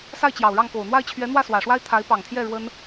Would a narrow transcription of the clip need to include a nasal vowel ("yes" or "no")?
no